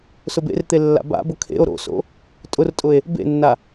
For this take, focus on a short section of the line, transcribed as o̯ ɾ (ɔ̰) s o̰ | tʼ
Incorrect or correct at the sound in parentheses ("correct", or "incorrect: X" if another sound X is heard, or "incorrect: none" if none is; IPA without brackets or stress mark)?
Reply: incorrect: o̰